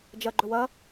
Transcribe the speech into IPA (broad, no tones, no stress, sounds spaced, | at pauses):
d͡ʒ ɐ ɡ͡ǃ ɵ w ɐ